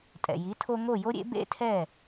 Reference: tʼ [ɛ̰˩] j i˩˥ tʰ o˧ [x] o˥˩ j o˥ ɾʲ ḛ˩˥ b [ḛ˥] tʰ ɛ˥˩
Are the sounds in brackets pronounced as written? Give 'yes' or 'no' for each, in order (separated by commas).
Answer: yes, no, yes